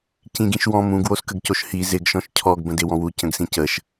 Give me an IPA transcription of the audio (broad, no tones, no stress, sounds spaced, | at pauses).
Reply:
c ĩ ɡ ĩ ʃ w ɔ̃ m ũ ɡ w o s k ə ɡ c o ʃ h i z ɪ ɡ ʃ ɔ̃ ʃ cʰ ɔ ɡ b ə̃ d ɪ w ɔ̃ w u c ə̃ ɡ s ĩ c ə ʃ